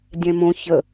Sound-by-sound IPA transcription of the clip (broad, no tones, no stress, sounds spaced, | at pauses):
dʲ ɛ̃ m õ ç ə